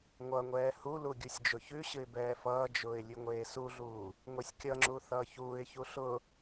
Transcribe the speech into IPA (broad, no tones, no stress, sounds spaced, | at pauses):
ŋʷ ʌ ŋʷ ɛː h u l u ɡʲ u sʲ d͡ʒ ʊ ç ʉ ɕ ɨ ɪ̯ b ɛː f ʌː d͡ʒ ʊː ɪ̯ lʲ ʉ ŋʷ eː s u ɮ uː | ŋʷ e sʲ kʲ ʌ ŋ͡ǁ u θ ʌː ç uː ɪ̯ ç u ɬ ʊ